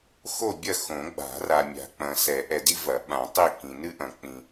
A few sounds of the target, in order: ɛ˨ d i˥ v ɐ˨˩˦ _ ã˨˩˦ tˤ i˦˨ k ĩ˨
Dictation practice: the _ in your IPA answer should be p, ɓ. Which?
ɓ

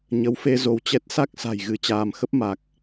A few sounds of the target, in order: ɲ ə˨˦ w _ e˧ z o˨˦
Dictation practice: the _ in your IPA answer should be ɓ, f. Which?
f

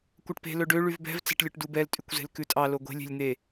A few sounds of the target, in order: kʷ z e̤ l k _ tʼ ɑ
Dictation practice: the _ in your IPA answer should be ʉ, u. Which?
ʉ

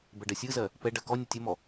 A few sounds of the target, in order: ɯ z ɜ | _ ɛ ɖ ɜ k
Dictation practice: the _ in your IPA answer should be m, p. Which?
p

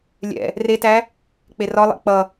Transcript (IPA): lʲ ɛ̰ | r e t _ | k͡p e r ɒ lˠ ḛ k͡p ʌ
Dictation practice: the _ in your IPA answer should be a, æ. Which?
æ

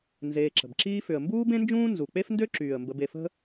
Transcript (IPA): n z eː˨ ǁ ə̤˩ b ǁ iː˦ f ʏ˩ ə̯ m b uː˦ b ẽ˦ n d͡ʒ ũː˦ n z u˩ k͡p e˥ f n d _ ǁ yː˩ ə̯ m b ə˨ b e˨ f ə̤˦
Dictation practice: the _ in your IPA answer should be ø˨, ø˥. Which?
ø˥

